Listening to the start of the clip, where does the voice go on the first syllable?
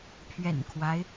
low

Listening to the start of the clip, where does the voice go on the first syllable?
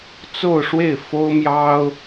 falling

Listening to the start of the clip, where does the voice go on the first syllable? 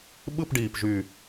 falling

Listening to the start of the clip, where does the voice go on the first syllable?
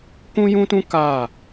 high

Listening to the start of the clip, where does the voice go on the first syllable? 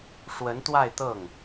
rising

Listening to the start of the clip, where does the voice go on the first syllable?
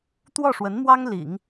falling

